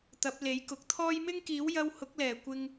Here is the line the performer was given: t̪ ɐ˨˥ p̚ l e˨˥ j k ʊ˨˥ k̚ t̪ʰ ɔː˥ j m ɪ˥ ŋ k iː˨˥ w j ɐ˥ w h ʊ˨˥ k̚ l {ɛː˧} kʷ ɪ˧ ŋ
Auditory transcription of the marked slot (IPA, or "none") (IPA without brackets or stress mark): ɛː˨˩